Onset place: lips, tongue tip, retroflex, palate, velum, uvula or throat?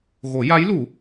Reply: velum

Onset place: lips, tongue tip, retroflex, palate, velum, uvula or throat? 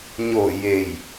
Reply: palate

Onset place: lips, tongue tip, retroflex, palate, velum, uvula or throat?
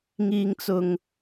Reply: velum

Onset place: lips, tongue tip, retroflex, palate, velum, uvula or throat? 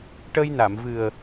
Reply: retroflex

